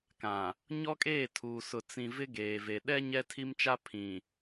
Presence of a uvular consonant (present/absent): absent